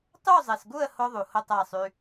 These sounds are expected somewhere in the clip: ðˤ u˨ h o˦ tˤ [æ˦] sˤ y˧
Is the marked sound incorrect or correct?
incorrect